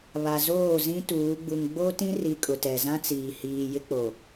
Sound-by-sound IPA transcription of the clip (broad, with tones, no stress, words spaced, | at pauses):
βa˨zoː˦˨zĩ˦tuː˨˦ ɡ͡bu˨ŋɡ͡bo˦tĩ˦ri˨ kʼʊ˨tɛ˨zã˦ t͡siː˨hiː˨jɪ˦ k͡po˨